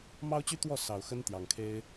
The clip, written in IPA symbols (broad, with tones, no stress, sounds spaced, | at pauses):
m ɑ˥ ʊ̯ t͡ɕ y˥ t̪ w ɔ˥˩ s ɑ˨˩ ʊ̯ x ə˥ n t̪ j ɑ˨˩ ŋ kʰ e˥ ɪ̯